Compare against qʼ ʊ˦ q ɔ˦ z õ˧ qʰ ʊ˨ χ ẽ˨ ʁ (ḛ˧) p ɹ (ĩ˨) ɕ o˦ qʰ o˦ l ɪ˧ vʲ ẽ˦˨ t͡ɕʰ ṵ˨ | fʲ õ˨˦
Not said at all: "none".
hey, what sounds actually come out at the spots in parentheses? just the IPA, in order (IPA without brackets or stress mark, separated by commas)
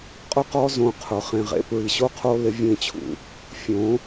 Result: ḛ˧, i˨